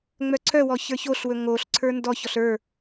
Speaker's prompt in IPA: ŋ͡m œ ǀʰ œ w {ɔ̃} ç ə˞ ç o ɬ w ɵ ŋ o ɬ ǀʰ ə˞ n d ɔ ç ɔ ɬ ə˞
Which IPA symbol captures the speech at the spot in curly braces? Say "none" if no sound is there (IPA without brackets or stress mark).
ɔ